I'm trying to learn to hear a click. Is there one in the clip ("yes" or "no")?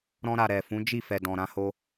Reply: no